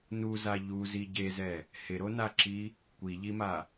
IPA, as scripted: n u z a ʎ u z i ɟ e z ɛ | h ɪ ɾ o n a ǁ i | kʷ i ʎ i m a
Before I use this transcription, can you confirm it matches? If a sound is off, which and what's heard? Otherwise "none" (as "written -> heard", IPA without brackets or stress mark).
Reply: none